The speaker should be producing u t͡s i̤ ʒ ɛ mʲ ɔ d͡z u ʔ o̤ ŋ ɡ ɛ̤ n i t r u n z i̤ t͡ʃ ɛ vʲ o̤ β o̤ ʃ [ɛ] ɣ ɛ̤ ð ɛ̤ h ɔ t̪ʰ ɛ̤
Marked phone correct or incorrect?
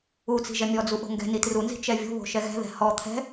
correct